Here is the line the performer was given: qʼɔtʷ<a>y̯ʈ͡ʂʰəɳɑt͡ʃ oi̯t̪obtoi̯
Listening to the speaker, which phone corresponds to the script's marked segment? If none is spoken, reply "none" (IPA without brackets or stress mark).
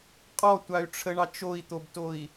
a